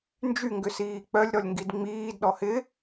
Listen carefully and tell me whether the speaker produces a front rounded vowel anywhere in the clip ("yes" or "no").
yes